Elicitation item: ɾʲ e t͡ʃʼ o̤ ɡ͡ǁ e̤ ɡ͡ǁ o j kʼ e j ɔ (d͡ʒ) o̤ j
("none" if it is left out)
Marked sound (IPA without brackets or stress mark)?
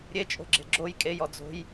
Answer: d͡z